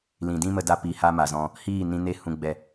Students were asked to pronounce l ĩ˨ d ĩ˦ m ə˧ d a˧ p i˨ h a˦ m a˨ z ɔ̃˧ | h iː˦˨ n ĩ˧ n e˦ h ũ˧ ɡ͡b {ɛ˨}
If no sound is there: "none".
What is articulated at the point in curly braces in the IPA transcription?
ɛ˦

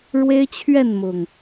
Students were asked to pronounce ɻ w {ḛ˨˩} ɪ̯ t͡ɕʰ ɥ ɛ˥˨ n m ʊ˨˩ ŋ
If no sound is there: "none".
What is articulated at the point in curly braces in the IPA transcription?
e˦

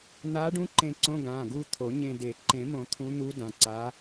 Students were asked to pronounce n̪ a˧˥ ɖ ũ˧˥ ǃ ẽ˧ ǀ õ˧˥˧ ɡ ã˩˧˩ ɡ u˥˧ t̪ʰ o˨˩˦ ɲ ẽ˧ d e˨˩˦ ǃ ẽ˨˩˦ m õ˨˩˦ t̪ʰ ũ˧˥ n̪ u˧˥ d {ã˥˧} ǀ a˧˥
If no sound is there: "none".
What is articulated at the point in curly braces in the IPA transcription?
ã˩˧˩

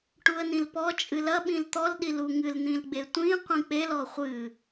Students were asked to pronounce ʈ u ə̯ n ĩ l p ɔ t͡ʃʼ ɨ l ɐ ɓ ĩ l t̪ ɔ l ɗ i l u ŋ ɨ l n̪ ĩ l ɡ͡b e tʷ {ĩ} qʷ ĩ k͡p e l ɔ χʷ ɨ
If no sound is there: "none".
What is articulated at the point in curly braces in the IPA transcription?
ĩ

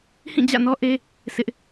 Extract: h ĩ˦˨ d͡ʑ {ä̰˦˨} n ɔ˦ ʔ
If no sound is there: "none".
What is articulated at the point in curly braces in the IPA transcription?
ä̰˦˨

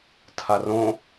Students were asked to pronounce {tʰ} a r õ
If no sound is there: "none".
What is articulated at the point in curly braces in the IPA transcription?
tʰ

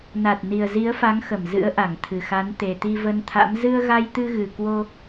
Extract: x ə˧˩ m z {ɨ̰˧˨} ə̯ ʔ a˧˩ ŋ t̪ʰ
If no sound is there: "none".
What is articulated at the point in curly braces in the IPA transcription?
ɨ̰˧˥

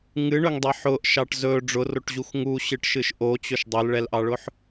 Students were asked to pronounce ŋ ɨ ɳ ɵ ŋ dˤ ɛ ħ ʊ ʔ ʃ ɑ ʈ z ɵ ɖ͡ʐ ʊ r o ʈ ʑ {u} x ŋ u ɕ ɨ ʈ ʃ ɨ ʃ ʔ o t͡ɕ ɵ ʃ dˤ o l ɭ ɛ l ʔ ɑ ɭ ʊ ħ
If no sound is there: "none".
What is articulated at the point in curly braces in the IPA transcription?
u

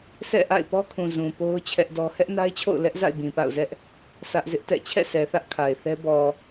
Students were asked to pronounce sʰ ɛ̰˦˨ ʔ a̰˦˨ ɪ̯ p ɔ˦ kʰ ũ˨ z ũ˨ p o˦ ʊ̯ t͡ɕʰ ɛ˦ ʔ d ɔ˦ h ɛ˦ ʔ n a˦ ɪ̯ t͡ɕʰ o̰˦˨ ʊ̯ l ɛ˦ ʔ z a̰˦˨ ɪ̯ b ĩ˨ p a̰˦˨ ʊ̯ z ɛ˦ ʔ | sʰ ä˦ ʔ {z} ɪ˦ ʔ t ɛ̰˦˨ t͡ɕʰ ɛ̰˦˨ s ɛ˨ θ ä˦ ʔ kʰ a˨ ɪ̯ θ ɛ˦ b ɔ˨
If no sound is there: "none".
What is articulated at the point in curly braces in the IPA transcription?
z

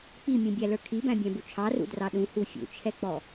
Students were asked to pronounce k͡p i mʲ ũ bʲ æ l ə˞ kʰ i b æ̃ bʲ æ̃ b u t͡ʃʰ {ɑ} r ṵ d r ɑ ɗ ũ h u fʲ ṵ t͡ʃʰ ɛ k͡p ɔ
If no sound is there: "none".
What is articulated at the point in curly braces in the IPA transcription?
ɑ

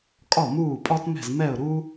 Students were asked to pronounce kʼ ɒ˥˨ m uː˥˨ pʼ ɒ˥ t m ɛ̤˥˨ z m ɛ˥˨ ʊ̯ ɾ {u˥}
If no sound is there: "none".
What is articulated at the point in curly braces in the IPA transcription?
u˥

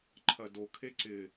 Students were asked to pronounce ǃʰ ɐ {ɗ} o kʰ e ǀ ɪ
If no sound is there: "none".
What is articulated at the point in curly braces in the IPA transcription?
d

